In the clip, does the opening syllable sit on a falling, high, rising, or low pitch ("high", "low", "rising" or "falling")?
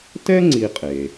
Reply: high